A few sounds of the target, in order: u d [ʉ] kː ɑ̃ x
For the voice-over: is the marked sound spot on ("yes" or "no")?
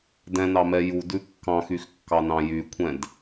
yes